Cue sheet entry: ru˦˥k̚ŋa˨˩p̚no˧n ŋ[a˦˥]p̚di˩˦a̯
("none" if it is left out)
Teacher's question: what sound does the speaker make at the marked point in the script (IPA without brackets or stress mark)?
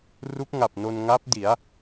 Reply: a˦˥